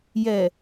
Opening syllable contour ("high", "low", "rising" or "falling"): low